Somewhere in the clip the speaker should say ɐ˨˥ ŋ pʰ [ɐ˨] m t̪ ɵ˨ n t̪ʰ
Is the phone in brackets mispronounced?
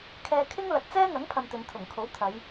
no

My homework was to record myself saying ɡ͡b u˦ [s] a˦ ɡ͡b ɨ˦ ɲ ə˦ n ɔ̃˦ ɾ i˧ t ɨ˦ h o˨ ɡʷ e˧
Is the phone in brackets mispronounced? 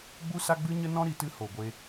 no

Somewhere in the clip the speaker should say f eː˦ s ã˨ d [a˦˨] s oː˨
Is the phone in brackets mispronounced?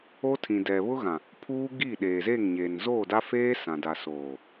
yes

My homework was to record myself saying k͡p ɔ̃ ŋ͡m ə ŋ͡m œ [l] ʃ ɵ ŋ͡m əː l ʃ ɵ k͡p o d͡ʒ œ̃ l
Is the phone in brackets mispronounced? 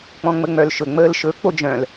no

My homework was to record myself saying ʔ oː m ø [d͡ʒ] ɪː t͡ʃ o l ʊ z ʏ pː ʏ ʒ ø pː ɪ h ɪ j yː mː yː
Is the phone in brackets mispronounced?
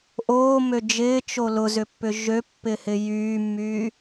no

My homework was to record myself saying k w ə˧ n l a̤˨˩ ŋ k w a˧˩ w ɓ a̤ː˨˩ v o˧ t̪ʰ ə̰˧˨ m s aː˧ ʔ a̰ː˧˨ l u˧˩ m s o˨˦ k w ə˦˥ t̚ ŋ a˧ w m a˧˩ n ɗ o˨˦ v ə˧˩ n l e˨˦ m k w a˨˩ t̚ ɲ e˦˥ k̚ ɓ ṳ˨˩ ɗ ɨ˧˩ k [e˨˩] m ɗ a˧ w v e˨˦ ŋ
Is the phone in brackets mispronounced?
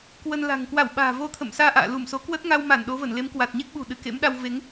yes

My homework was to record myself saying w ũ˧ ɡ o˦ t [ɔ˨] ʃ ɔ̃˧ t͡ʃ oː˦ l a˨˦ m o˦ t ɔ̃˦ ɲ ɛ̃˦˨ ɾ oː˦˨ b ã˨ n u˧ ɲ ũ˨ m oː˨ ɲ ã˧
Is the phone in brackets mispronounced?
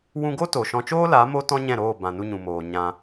yes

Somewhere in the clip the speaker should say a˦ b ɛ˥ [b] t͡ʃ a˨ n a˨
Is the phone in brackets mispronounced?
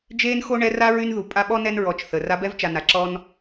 yes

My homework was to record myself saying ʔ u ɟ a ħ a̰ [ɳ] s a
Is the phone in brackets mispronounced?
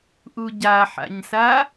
yes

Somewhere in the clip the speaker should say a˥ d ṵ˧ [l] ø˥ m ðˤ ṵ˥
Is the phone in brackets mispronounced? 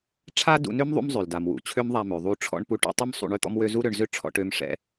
yes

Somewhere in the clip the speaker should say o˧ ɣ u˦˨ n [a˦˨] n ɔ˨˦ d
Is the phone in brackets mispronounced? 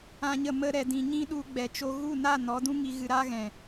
no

